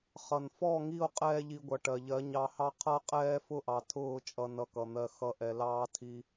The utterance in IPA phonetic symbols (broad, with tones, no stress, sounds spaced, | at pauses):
χ ʌ˨ n f ɔ˦˨ ŋ i˦˨ o̯ qʼ ɛː˦ ʎ i˧ ɡʷ ʌ˨ ʈ ɜ˨ ʎ ɜ˨˦ ɲ ɑ˧ h ɑ˦ qʰ ʌ˦ qʼ ɛː˦ f ʊ˦ ʔ ɑ˨ tʰ ʊː˦˨ t͡ʃʼ ʌ˧ n ʌ˧ k ʌ˨ n̪ ɜ˧ x ʌ˧ ʔ ɛ˧ l ɑː˦ tʰ i˧